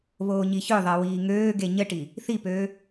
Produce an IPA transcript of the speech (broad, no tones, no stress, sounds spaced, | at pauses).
β oː ɲ i ç ø ðˤ ɜ w iː ŋ øː ɡ e ɲ ə ʈ i | θ i p øː